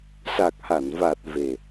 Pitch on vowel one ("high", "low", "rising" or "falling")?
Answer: low